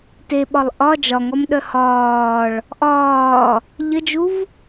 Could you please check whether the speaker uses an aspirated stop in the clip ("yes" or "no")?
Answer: no